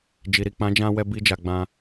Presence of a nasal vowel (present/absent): present